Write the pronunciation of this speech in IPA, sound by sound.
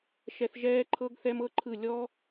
ʃ ɛ˧ θ ʒ ɛː˦ ǃʰ ɤ˦ ɡ θ ɛ˦ m ɤ˦ ǃʰ ɯ˦˨ lʲ ɔ˦

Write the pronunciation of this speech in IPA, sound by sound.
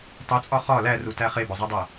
tˤ o t͡sʼ ɒ χ ɒ l æ r u t æ χ e b ɒ zˤ o dˤ æ

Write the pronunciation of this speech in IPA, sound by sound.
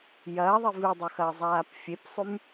j ɐː ðˤ i v ɨ dˤ ɵ x ɐː zˤ aː p fʲ e p sˤ ʉ m

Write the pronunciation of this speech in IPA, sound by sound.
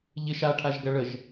ʎ ɪ ʃ a ʈʰ a ʒ ɡ ɐ ɭ ə ʒ

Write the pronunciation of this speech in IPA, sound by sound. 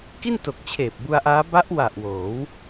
k i˥˩ n t o˨˩ k̚ t͡ɕʰ eː˨˩ p̚ b u˧ a̯ ʔ aː˦˥ b a˦˥ ʔ w a˨˩ ʔ w oː˩˦ w

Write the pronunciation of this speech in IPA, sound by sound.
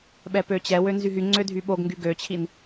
ɓ ɛ p ø t͡ɕ ɛ w ø n z y ɦ y ŋ͡ǀ ø dʱ y ɓ o ɡ ŋ ɡ y ɡ ø t͡ɕʰ i n

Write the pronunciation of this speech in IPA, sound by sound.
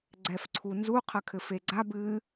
ɡ͡ǀ ɛ f ǀʰ u n z u qʰ ɐ kʰ ɘ f e ɡ͡ǀ a b ɨ

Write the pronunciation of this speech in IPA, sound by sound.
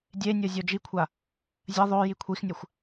dʲ e nʲ o zʲ o d͡ʒ i kʷʰ a | zʲ ɐ ðˤ o j i kʷʰ i x nʲ ɐ xʷ

